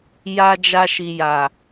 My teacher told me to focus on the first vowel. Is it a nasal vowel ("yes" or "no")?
no